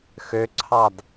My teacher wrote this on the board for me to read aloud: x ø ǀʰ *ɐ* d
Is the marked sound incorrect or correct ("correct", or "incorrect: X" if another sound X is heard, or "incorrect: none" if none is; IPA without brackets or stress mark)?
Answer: incorrect: ɑ